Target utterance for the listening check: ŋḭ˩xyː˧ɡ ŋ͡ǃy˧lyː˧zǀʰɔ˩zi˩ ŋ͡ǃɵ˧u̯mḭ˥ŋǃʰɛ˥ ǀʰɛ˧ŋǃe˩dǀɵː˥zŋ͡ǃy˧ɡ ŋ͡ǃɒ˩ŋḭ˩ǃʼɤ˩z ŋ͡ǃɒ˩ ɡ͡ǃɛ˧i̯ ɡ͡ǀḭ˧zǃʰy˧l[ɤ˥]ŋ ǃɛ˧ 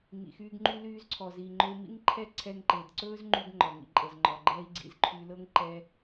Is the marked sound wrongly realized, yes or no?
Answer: no